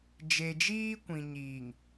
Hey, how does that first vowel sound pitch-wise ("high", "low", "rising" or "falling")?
low